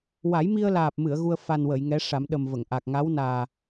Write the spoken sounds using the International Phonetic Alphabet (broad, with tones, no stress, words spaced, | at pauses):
wa˨˩˦jmi˧ə̯laː˨˩p̚mɨ˨˩˨ə̯ ɣu˧ə̯ fa˨˩n wə˨˩˨jŋɛ˧˥ ʂa˨˩˦mɗə˨˩m və˨˩˨ŋʔa˨˩k̚ ŋa˧˥wnaː˨˩